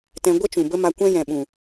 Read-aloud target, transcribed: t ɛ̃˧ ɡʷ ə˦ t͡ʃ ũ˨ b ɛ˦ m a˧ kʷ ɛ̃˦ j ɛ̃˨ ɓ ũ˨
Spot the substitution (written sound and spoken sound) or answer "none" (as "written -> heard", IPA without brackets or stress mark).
ɛ˦ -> ə˦